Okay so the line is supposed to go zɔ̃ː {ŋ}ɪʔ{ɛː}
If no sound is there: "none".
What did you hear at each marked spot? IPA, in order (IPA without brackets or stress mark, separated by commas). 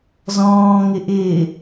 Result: ŋ, ɪː